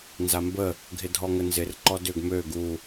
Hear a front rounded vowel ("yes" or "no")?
yes